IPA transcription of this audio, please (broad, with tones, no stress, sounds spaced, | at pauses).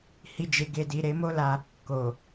h i˧ d͡ʒ e˨ ɡ e˨ d i˨ ɾ e˨˦ m o˦ l a˧ | k o˨